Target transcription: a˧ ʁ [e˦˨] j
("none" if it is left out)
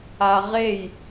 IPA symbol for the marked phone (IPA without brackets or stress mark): e˦˨